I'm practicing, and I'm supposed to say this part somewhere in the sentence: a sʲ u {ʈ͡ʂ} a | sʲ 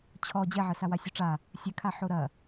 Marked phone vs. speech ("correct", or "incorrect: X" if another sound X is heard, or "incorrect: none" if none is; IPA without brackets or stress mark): correct